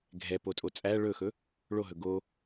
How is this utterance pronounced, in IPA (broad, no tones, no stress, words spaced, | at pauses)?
ɡʱɛpotʼo t͡sʼæ ɭɵxɵ | ɭoɦɵ ɡo